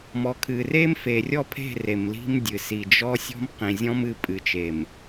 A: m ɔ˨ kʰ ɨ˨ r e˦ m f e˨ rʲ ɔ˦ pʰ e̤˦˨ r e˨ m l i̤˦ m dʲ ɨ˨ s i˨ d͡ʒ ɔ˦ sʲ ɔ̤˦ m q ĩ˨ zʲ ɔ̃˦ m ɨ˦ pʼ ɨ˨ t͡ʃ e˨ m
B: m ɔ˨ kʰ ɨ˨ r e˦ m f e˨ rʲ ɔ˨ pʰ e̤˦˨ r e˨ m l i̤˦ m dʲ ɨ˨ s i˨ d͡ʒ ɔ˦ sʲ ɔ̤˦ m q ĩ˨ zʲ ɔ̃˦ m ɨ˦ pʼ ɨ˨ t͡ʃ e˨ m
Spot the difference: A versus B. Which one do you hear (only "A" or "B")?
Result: A